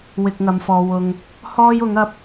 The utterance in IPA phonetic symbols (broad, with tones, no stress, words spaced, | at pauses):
wɪ˧k̚ŋɐ˨˧mfɔː˨ wʊ˧ŋ | hɔː˥jʊ˨˥ŋɐ˧p̚